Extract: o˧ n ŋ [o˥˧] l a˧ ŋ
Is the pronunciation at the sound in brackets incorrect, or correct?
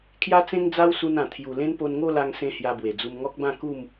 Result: correct